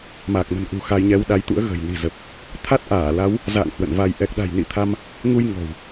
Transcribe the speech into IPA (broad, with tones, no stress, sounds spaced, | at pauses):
m a˨˩ k̚ m ə̤˨˩ n ʔ ṳ˨˩ x a˧ j ɲ ɛ˧ w ɗ a˨˦ j t̪ ṵ˧˥ ə̯ ɣ ə̤˨˩ j n i̤˨˩ z ə˨˩ p̚ | t̪ʰ a˦˥ t̚ ʔ aː˧˩ l a˨˦ w | z a̰ː˧˨ ŋ h w ə̰˧˨ n v a˧ j ʔ ɛ˨˩ k̚ ɗ a̤˨˩ j n ḭ˧˨ t̪ʰ a˧ m | ŋ u˧ j ŋ ɔ̤˨˩ w